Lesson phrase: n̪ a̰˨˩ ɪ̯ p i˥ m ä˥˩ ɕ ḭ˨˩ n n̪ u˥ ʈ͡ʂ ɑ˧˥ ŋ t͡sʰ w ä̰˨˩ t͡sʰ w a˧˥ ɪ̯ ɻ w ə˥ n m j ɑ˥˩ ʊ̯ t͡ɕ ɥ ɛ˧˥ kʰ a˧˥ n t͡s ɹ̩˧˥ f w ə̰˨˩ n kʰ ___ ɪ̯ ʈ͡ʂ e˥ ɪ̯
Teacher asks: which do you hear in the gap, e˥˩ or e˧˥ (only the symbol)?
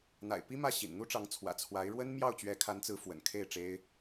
e˥˩